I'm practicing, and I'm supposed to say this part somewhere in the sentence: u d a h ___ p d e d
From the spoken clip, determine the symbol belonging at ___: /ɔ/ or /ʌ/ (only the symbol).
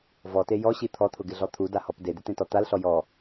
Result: ɔ